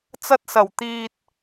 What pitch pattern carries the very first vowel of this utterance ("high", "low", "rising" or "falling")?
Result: high